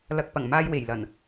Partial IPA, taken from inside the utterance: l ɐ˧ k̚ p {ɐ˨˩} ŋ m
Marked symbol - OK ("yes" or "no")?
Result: yes